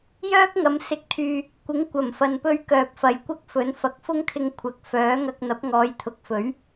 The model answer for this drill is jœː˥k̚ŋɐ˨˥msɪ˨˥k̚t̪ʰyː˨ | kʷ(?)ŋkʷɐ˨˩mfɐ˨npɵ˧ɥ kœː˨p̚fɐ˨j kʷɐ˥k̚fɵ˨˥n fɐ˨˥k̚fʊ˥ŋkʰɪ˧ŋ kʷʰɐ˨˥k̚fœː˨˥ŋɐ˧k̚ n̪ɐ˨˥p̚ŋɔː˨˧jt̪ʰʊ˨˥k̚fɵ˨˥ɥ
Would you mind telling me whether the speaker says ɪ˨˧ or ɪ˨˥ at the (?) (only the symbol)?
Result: ɪ˨˥